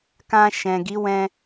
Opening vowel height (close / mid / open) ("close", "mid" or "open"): open